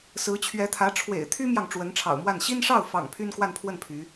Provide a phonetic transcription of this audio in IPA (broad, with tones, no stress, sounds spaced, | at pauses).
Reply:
s ɹ̩˧˥ t͡ɕʰ ɥ ɛ˧˥ t̪ʰ ä˧˥ ʈ͡ʂʰ w ḛ˨˩ ɪ̯ t̪ʰ y˥ m j ɑ˨ ŋ ʈ͡ʂ w ə˧˥ n ʈ͡ʂʰ ɑ̰˨˩ ʊ̯ m w a˥˩ n ɕ i˥ n ʂ ɑ˥˩ ʊ̯ f ɑ̰˨˩ ŋ pʰ y˥ n k w a˥˧ n pʰ w ə˥˩ n pʰ y˧˥